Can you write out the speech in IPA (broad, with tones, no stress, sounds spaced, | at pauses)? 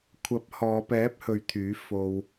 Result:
kʷʰ ɐ˨˥ p̚ h ɔː˨˧ p ɛː˨˥ p̚ h ɵ˨˧ ɥ t̪ʰ yː˨˥ f o˧ w